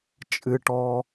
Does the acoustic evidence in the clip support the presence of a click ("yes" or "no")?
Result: no